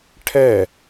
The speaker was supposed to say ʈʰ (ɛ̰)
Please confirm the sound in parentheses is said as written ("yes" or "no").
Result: no